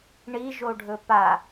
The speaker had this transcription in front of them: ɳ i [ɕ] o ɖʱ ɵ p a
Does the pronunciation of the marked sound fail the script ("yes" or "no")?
yes